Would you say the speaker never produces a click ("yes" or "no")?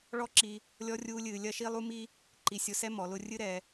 no